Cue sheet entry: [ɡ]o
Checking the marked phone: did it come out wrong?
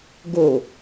no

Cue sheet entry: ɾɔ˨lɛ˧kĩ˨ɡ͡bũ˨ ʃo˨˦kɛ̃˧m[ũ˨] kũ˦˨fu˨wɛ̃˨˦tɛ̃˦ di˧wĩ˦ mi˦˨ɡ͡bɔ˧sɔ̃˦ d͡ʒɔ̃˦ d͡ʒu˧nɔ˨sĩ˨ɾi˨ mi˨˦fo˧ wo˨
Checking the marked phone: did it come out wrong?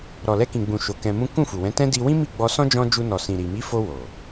yes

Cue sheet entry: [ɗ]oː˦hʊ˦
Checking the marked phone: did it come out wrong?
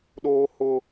no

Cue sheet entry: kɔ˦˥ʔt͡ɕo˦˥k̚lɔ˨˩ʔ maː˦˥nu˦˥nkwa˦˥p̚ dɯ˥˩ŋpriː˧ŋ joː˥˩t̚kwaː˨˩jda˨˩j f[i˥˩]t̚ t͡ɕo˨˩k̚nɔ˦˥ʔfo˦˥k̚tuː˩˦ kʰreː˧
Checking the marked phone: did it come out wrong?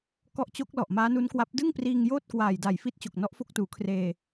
yes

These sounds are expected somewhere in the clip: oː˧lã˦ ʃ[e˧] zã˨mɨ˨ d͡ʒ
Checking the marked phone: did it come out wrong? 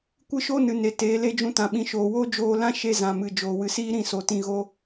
no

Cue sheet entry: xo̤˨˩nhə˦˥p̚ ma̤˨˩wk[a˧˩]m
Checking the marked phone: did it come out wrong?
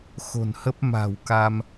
yes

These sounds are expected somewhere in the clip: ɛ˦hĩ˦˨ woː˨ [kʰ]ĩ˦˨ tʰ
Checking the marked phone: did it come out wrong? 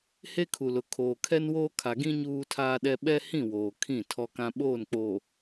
no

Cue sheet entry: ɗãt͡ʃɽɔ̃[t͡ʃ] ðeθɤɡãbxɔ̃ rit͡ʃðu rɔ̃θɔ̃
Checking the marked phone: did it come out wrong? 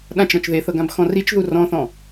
no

